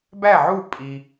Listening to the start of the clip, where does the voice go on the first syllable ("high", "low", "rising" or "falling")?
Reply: falling